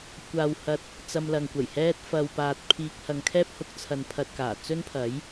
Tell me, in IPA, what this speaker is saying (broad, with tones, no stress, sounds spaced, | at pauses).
kʷ aː˨ w h ɐ˧ t̚ | t͡s ɐ˧ m l ɐ˨ ŋ kʷ ɐ˨˩ j h ɛː˥ t̚ f ɐ˧ w p aː˧ t̚ pʰ iː˧ k̚ h ɐ˨ ŋ kʰ ɛː˥ p̚ h ʊ˧ k̚ t͡sʰ ɐ˧ n pʰ ɐ˧ t̚ k aː˨˩ t͡s ɵ˥ n pʰ ɐ˨˥ j